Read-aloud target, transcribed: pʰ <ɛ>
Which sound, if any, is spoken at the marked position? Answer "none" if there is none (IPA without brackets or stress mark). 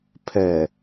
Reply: ɛ